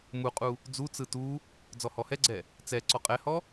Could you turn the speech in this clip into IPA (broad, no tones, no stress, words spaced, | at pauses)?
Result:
muqʼu | d͡zu t͡sɯtu | d͡zɔhɔhɛɡ͡ǀɛ | t͡sɛ ǀɔqʼɛhɔ